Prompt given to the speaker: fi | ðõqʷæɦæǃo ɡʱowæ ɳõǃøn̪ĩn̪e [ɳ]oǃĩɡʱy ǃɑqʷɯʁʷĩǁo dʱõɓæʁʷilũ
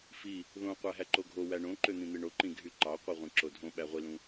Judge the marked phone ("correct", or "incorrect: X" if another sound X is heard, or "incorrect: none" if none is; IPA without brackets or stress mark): correct